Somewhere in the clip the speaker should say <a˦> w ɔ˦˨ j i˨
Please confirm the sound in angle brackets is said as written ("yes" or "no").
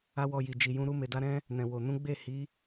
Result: yes